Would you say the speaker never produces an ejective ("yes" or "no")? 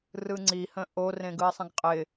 no